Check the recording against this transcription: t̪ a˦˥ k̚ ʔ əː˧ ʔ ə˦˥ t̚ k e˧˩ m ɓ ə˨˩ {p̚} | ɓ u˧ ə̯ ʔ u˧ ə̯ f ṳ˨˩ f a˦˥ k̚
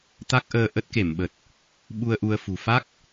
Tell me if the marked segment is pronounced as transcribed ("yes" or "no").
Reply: no